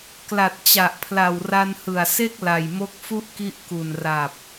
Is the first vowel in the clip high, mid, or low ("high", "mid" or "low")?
low